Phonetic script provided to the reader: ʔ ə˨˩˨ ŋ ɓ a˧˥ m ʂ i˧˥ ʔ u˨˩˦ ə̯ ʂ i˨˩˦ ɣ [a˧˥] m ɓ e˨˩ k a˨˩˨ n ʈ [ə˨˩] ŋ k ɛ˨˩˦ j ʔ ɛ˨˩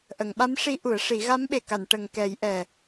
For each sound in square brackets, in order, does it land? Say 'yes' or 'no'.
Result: yes, yes

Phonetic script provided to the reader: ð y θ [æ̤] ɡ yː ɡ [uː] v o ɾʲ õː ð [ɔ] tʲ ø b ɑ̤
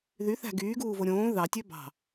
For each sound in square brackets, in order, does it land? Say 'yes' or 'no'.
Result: yes, yes, no

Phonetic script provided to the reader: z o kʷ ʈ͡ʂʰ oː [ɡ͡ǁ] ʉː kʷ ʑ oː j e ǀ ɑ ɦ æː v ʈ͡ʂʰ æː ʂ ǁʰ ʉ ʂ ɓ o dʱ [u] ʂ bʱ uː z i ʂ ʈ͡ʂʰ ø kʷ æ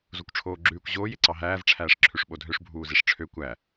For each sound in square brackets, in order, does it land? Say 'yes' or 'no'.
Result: yes, no

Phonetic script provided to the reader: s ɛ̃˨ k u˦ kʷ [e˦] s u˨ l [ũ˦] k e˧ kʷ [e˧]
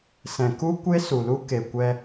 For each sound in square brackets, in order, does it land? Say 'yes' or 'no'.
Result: yes, no, no

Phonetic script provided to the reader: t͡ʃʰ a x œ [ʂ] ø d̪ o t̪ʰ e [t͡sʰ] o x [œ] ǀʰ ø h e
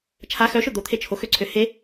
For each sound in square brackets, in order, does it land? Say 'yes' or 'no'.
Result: no, no, no

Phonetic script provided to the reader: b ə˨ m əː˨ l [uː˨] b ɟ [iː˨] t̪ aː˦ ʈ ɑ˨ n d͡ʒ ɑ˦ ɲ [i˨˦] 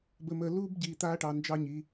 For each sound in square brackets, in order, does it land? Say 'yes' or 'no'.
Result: no, yes, yes

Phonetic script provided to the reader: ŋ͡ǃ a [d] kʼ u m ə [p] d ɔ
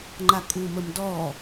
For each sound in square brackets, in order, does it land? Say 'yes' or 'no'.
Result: no, no

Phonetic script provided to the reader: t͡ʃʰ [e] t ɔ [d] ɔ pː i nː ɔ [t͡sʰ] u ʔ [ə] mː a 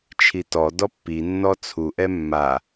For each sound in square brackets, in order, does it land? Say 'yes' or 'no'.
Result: no, yes, yes, no

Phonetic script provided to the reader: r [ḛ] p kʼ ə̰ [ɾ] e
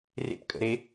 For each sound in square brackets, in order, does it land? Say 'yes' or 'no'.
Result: yes, yes

